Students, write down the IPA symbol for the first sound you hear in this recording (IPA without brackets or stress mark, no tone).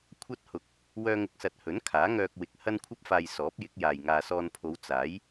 kʷʰ